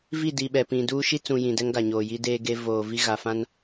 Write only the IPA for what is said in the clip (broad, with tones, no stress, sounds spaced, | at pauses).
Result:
v i˦˨ d i˨ ɓ ɛ˨ p ĩ˨ d uː˦ ʃ i˦ t͡s ũ˨ j ĩ˨ d ɛ˦ ŋ ɡ a˨ ɲ oː˨ j i˦ d eː˦ ɡ e˦ v oː˨ v i˦ ɣ a˨ f ã˦ n